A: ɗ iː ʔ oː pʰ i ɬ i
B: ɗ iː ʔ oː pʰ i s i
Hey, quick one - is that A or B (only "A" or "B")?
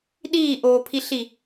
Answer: A